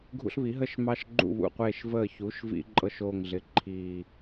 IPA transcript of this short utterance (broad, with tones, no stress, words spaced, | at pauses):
ɡʱṵ˦ɬβi˩˥ɦə˥˨ʃmɑ˦ʃ ɡ͡ǃṵ˥˨βṵ˧˩qʷeː˧˩ʃ vəː˧˩çu˩˥ʃ vḭ˦ǃʼɤ˦ʃ o˧˩ŋɮɪ˩˥ ǃʰi˧˩